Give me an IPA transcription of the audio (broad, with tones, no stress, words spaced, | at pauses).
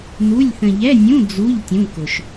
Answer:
nu˧˥˧lʲθə̃˧ ʎɛ˧˥˧nʲũ˧˥˧ d͡zu˧˥˧ʎ tʲũ˧˥˧kʊ˧ʃ